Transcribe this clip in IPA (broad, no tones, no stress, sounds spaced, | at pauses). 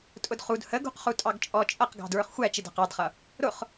tʼ ʊ d χ u d h ə ɡ ṳ q χ u tʼ ɑ ɡ t͡ʃʼ ɔ t͡ʃʼ ʌ q ɡ ɑ̤ d ɹ ə˞ χ xʷ æ t͡ʃ ɪ d ɑ̤ q ɑ d χ ʌ | ɾ ʊ χ